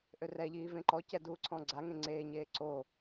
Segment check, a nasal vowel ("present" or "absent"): present